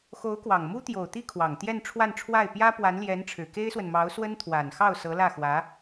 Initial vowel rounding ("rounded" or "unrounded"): rounded